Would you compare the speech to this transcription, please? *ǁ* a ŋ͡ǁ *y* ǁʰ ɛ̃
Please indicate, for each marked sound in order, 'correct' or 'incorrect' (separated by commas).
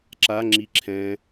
correct, incorrect